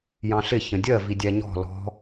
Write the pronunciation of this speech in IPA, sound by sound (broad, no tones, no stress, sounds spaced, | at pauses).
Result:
j ɑ̃ ɬ ɪ ç ə̃ dʲ ɜ v i dʲ æ ɲ ɔ̤ l ɔ̤